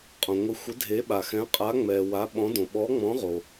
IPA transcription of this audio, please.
qʼõ˩ŋʷɪ˨˥ xʷɪ˨˥dʱe˨˥ɓa˩ xɛ̃˨˥qʼa˨˥ŋ͡mɛ˩ wa˨˥ɓɔ̃˨˥dõ˩ ɓɔ˨˥ŋ͡mɔ̃˨˥ʁo˩

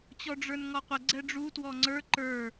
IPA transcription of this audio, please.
t͡ɕɔɖ͡ʐə˞nŋɔqʷə ɡ͡ǀɛɖ͡ʐu twɔŋ͡ǀə˞ ǃə˞

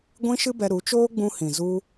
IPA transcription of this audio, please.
ɡʷĩ˦ʃɨ˦bɛ˧ ɾu˨˦t͡ʃoː˦ ɡ͡bũ˧hĩ˨ zu˦

